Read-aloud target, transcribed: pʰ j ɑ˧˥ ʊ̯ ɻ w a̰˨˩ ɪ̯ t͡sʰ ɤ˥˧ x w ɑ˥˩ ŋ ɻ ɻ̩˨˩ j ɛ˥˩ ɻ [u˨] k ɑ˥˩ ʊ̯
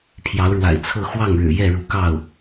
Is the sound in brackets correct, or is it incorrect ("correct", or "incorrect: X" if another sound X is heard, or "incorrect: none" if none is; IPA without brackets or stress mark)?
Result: incorrect: u˧˥